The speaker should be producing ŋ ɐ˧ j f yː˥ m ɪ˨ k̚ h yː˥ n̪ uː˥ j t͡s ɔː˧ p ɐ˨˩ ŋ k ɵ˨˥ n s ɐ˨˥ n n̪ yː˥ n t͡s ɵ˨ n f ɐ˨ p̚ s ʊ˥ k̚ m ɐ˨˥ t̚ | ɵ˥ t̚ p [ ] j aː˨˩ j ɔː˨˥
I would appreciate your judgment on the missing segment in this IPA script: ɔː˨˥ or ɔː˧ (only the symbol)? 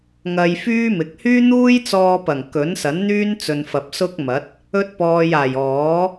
ɔː˧